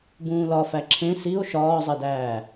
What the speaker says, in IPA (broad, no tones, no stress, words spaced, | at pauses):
bũːlɒfæ ǁʰẽ sio̯ ʃɒːzˤedæː